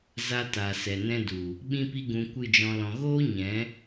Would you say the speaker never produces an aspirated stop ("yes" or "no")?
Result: yes